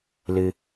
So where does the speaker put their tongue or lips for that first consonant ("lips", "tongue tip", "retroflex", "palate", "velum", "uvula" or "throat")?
tongue tip